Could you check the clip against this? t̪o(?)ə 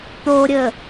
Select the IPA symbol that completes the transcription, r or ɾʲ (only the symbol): ɾʲ